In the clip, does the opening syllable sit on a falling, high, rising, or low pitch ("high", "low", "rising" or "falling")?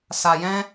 low